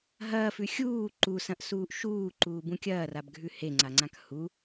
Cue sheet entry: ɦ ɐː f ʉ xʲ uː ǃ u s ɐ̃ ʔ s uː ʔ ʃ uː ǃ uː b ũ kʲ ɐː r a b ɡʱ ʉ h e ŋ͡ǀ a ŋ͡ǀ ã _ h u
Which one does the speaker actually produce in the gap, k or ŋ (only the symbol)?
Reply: k